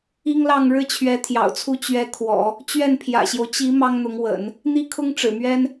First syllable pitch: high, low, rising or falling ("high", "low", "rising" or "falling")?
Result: high